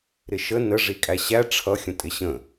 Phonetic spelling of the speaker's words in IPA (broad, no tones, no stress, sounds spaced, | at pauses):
ɾ ɪ ʃ ə n ə ʐ i kʼ æ ɕ æ ʈ͡ʂʰ ʌ xʲ ə̃ tʼ ɪ ɕ ə̃